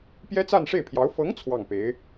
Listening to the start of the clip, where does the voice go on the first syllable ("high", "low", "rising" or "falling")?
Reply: high